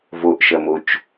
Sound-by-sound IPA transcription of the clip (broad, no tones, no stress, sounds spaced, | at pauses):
v o ʔ ʃ ɐ m o t͡ʃ